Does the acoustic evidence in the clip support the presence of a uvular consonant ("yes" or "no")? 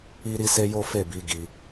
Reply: no